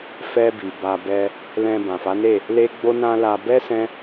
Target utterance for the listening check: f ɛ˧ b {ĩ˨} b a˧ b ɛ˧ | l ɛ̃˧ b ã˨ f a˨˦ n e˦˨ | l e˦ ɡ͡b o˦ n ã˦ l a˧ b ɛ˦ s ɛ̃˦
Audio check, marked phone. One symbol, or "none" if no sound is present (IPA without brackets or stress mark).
i˨